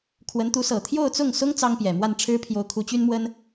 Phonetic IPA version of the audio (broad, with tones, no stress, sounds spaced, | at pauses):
kʰ w ə˧˥ n t̪ u˧˥ s ɤ˨˩ t̪ʰ j o˥˧ ʊ̯ t͡s ʊ˥˩ ŋ s ʊ˥ ŋ t͡s ɑ˥ ŋ p j ɛ˨˩ m w a˥˩ n ʈ͡ʂʰ ɻ̩˥ pʰ j o˧˥ ʊ̯ kʰ u˧˥ t͡ɕ y˥ n m w ə˥ n